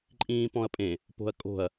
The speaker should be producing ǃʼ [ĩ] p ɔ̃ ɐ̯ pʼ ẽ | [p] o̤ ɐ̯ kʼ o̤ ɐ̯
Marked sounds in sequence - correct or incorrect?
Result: incorrect, correct

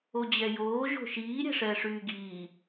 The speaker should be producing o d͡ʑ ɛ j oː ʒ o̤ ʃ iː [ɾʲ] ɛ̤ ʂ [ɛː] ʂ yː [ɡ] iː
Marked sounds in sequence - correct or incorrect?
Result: correct, correct, correct

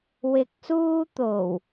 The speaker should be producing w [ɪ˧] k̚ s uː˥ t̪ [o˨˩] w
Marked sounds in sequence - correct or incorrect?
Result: correct, correct

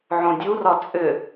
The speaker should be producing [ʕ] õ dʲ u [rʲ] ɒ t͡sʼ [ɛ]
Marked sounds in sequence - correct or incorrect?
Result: correct, incorrect, incorrect

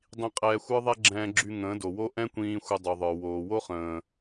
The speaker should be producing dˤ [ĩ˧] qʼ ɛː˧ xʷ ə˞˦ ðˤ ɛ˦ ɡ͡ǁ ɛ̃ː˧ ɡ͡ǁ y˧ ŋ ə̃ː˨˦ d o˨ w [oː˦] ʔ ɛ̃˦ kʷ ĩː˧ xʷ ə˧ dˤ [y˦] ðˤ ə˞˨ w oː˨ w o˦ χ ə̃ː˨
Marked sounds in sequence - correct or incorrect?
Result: correct, incorrect, incorrect

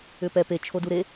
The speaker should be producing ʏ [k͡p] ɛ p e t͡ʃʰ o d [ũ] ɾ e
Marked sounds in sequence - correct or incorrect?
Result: incorrect, incorrect

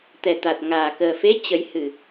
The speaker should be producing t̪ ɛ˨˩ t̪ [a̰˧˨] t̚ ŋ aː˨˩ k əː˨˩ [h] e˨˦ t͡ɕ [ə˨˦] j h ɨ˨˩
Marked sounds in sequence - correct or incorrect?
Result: incorrect, incorrect, correct

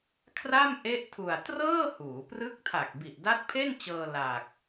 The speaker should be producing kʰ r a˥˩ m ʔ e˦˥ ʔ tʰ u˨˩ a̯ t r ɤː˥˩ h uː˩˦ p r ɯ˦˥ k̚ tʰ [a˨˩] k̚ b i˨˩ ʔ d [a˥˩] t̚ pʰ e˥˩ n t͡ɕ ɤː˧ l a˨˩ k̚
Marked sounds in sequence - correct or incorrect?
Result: correct, incorrect

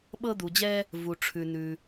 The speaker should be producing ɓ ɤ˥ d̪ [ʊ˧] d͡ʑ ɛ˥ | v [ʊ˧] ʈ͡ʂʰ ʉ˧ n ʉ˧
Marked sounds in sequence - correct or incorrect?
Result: incorrect, incorrect

